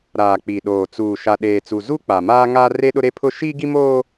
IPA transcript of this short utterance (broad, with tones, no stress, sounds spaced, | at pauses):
ɾ aː˨ k͡p i˨ ɗ oː˨ t͡s uː˨ ʃ a˨ ɗ eː˨ t͡s u˨ z u˦ k͡p a˨ m aː˦ ŋ aː˦ r e˦ ɗ ʊ˦ ɾ e˦ pʰ ʊ˦ ʃ iː˦ ɡ i˦ m oː˦